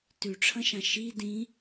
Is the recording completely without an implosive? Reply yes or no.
yes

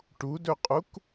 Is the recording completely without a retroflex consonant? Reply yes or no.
no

